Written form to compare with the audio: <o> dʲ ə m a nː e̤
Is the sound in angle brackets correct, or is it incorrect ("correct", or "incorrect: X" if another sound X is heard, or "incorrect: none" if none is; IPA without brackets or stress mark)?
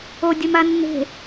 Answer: correct